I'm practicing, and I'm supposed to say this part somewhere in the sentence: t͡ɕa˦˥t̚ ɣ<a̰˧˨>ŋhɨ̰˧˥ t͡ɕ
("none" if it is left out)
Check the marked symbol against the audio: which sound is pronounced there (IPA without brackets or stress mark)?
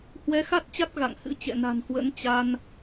a̰˧˨